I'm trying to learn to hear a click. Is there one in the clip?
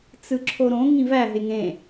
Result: yes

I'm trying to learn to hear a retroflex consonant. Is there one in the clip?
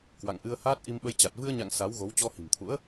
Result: no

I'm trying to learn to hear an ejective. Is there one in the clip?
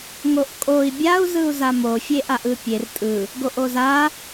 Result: yes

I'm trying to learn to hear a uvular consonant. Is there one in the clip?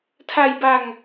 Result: no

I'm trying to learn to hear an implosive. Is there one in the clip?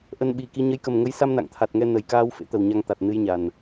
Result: yes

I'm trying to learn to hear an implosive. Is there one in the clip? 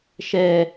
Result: no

